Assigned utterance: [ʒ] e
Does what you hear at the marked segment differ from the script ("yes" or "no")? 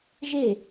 no